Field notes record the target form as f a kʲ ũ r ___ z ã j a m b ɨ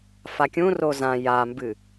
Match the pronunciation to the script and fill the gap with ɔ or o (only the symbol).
o